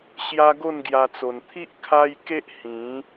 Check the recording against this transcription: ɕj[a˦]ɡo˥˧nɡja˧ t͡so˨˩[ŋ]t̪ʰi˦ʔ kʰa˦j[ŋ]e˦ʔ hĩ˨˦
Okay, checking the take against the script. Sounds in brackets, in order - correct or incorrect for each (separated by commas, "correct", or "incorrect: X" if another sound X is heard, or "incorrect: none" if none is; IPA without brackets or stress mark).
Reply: correct, incorrect: n, incorrect: k